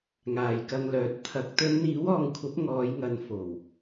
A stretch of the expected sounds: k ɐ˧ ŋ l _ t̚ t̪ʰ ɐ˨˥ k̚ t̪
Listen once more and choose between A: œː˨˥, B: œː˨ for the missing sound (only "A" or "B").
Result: A